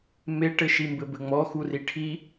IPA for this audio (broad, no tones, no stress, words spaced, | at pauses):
meʈɘ ʃimbɘbɘŋ͡mɔ xuriʈʰi